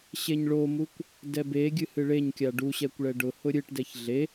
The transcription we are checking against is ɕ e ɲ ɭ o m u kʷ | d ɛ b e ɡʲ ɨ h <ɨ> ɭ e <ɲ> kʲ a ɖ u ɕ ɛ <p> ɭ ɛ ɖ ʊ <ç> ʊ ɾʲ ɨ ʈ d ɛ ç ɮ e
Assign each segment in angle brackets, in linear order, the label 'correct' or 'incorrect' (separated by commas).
correct, correct, incorrect, incorrect